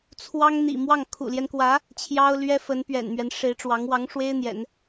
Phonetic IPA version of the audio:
t͡sʰ w ɑ˥ ŋ n̪ ḭ˨˩ m w ɑ˥˩ ŋ kʰ ṵ˨˩ l j ɛ˦ n k w ä˧˥ | t͡ɕʰ j ɑ˥ ʊ̯ l ɥ ɛ˥ f ə˧˥ n p ɥ ɛ̰˨˩ n m ɥ ɛ˦ n ʂ e˧˥ ɪ̯ ʈ͡ʂ w ɑ˧˥ ŋ w ɑ˧˥ ŋ ʂ w e˥ ɪ̯ n̪ j ɛ̰˨˩˦ n

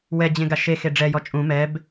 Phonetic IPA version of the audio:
w ɛ d͡ʑ ẽ ɡ a ʃ e x e ɖ͡ʐ ɛ j ɔ t͡ʃʼ ũ m ɛ b

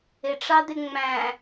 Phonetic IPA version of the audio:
ɪ ʈ͡ʂ ɑ d̪ ɪ ŋ͡m æ̃

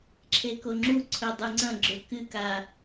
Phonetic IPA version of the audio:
ǁʰ e k o ŋ͡ǁ u ǀʰ ɵ dˤ ɨ ŋ͡ǀ ɐ̃ ɡ͡ǁ ɵ k ɨ k a

